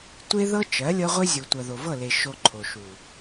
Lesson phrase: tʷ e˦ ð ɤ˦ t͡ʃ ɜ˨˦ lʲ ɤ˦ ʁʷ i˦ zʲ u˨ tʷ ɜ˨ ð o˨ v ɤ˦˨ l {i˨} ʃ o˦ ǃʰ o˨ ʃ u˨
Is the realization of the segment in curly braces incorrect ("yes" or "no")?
yes